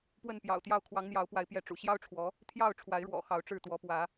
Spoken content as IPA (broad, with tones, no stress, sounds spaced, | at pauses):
p w ə˥˨ n p j ɑ̰˨˩ ʊ̯ t̪ j ɑ˥˨ ʊ̯ kʰ w ɑ˨˦ ŋ n̪ j ɑ˨˦ ʊ̯ p w a˨˦ ɪ̯ p j ɛ˨˦ ʈ͡ʂ ṵ˨˩ ɕ j ɑ˦ ʊ̯ ʈ͡ʂʰ w ɔ˨˦ | t̪ʰ j ɑ˥˨ ʊ̯ ʈ͡ʂʰ w a˨˦ ɪ̯ ɻ w ɔ̰˨˩ x ɑ˨˦ ʊ̯ ʈ͡ʂ ɻ̩˥˨ t̪ w ɔ˨˦ p w ä˨˦